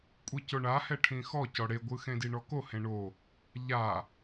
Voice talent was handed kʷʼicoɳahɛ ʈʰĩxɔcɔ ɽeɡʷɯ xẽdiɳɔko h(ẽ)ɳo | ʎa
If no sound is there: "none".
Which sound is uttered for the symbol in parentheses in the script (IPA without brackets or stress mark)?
ẽ